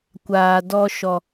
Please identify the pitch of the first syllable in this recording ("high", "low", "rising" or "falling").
low